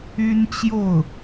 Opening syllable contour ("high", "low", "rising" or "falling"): high